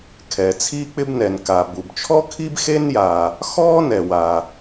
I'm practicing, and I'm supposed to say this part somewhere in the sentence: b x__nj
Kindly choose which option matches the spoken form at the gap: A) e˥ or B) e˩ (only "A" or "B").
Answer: A